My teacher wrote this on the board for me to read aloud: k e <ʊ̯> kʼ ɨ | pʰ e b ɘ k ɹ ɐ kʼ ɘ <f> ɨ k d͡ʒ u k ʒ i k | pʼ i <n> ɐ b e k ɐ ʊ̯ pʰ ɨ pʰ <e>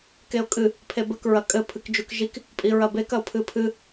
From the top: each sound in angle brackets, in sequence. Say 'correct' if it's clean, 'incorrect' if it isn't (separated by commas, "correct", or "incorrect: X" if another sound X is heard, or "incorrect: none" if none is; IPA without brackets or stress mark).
correct, incorrect: pʰ, incorrect: ɹ, incorrect: ɨ